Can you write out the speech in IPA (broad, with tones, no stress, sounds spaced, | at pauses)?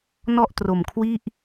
n ɔ˥˩ ʔ t r o˨˩ m kʰ w i˥˩ ʔ